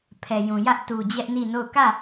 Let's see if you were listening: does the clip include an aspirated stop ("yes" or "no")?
yes